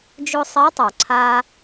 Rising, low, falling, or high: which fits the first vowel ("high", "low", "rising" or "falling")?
high